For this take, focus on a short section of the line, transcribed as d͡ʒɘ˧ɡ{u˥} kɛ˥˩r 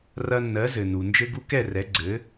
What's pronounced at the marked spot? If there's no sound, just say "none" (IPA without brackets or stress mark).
u˧